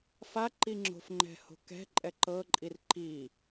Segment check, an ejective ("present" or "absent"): present